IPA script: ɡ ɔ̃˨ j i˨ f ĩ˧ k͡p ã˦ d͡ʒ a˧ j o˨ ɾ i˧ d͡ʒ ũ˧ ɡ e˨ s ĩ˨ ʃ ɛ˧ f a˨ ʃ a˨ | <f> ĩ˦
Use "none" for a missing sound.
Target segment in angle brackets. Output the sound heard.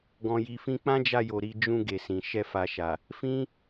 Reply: f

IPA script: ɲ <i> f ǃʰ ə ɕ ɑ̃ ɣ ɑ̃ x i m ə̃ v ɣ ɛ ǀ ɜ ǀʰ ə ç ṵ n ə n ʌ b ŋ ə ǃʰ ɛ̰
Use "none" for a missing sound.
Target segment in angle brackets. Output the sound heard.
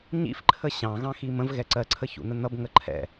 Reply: ḭ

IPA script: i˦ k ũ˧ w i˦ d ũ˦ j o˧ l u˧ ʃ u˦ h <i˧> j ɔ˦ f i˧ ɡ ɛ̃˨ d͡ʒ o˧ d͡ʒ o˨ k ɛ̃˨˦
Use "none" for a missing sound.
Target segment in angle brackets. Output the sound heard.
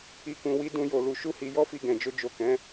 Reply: i˧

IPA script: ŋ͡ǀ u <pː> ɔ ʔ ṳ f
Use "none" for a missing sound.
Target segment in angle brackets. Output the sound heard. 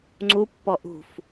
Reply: pː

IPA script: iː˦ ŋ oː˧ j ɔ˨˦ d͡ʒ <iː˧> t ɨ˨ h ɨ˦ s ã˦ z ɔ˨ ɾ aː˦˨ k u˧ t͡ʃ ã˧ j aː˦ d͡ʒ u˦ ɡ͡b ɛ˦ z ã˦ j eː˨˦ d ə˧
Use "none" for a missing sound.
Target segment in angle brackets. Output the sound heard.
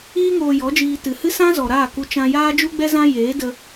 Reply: iː˧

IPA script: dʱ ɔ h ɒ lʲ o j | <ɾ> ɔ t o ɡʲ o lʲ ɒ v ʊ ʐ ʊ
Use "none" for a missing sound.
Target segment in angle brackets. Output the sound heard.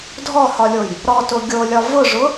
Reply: ɾ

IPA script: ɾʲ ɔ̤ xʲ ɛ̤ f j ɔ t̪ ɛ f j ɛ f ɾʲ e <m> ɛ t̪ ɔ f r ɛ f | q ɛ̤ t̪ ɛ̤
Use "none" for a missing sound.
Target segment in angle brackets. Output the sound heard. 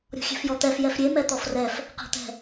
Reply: m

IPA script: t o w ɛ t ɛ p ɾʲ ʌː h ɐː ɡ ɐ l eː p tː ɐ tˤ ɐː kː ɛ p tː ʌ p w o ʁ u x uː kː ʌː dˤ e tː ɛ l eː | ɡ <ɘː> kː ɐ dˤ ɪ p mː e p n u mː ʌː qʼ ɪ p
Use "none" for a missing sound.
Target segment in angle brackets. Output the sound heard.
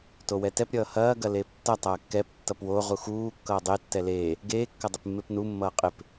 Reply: eː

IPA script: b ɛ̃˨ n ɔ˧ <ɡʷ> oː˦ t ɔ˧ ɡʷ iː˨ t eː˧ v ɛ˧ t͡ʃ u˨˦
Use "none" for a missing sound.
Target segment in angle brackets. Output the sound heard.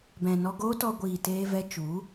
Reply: ɡ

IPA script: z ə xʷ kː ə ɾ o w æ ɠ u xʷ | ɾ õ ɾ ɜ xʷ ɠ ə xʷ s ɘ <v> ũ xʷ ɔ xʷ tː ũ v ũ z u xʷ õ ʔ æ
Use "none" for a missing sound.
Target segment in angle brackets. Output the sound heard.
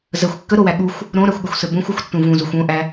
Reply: b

